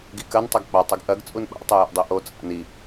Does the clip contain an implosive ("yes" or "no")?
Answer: yes